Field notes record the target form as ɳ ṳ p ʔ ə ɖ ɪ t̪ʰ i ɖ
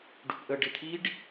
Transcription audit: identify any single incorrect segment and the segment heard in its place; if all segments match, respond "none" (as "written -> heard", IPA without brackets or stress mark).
ɳ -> ɖ